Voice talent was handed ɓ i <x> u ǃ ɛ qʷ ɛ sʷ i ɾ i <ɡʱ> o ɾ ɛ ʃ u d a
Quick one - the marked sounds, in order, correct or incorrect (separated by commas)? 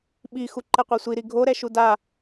correct, correct